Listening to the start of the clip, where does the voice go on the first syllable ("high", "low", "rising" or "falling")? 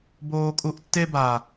high